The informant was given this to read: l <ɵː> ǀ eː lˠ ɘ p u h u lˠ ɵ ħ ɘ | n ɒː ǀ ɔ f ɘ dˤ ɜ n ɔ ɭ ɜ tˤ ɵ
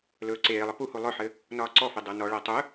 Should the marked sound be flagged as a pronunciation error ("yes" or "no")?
no